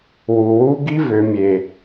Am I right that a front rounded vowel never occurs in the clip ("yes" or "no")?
no